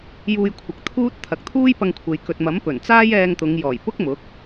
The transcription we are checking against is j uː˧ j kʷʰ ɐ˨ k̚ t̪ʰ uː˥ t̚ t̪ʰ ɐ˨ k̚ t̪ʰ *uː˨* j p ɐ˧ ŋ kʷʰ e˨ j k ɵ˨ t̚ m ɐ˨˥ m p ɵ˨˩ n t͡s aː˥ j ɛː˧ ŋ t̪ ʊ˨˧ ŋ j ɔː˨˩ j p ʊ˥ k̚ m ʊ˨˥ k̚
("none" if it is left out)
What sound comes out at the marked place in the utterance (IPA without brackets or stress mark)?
uː˥